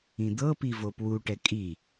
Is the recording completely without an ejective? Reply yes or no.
no